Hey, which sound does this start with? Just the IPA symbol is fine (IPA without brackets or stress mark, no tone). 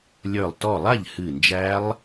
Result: lʲ